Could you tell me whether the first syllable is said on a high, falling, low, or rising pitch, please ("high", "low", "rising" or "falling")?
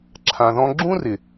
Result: low